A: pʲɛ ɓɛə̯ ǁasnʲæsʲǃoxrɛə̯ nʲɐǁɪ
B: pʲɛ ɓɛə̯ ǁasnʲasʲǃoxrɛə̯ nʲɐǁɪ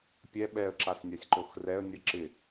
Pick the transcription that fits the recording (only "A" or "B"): B